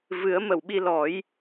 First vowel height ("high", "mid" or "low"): high